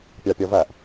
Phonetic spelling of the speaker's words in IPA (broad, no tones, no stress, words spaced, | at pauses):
pʲɑpʲɔvæʔ